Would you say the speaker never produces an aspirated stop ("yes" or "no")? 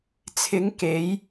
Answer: no